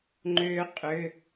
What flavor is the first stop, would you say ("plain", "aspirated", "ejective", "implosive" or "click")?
click